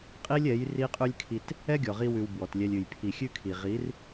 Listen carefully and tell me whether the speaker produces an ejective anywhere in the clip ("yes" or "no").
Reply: yes